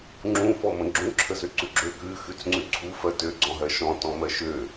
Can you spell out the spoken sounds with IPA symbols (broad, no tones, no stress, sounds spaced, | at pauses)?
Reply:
ŋ͡ǁ ũ f ɔ m ə̃ ɡ͡ǁ ũ ǁʰ ə z ø ǀ ʉ ɡ͡ǁ ø k ʉ x ʉ t͡s ŋ͡ǀ ʉ ǀʰ u f ɜ t ø ɡ͡ǀ ɔ̃ ɦ ɜ ʃ ɔ̃ t ɔ̃ m ɜ ʃ ø